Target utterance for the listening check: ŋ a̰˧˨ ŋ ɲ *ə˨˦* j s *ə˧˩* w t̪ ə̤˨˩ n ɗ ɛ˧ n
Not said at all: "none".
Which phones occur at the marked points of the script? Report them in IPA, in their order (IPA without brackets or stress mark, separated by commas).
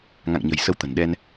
ə̤˨˩, ə˧